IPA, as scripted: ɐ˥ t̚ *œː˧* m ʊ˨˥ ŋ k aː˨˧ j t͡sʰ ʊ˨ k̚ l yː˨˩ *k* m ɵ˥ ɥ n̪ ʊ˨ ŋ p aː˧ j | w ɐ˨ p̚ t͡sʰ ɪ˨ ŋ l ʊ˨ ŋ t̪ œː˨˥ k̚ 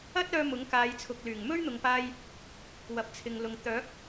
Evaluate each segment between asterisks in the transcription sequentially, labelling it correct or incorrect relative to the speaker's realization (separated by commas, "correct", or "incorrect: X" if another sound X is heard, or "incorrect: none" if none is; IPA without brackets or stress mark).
correct, incorrect: ŋ